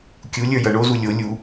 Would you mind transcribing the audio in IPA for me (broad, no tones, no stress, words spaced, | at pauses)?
kʲulʲə˞ jʌɳozu lʲo lʲu